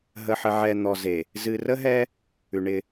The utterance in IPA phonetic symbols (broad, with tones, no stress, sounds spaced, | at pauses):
ɦ ə˨ ħ ə˨ ʕ ɛ˨ n̪ ɔ˨ z e˨ | z ɨ˨ r ə˦ ɦ ɛ˦ | ʉ˨ ɳ ɪ˦